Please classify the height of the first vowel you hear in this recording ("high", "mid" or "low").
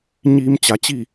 high